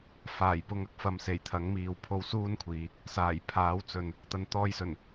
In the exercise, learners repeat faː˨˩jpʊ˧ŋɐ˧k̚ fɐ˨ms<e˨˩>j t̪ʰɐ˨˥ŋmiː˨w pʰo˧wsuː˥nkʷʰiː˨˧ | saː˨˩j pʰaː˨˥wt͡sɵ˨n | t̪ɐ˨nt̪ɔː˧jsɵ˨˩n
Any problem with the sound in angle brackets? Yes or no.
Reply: no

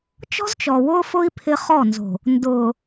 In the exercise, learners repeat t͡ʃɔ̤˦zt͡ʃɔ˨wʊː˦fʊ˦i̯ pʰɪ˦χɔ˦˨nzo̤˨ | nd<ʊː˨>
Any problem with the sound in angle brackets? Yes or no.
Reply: no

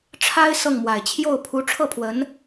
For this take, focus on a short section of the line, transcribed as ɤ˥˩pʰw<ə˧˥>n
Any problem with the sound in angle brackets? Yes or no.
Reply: no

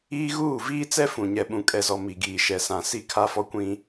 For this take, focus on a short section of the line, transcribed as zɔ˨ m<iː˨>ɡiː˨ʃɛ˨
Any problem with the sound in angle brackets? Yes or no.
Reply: yes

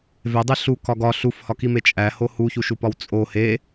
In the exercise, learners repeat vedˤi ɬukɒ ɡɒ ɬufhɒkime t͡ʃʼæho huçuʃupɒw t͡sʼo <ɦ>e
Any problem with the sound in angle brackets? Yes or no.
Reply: yes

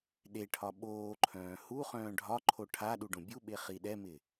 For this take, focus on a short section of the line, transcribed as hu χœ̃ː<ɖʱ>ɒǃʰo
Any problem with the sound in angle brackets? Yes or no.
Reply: no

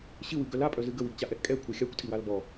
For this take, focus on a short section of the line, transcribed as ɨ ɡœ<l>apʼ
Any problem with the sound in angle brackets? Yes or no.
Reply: no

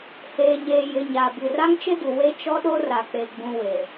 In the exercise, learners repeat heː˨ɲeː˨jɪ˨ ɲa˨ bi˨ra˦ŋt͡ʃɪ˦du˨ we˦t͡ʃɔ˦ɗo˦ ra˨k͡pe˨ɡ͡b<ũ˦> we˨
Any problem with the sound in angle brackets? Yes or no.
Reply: yes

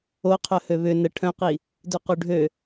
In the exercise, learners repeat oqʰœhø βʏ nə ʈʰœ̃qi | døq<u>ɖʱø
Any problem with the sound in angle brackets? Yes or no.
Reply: no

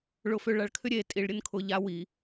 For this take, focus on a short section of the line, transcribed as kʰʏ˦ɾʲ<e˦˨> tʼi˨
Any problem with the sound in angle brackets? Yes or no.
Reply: yes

